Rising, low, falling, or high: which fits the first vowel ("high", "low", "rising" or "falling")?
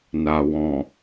low